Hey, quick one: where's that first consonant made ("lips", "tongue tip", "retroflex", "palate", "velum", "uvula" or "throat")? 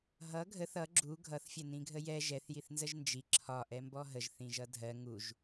throat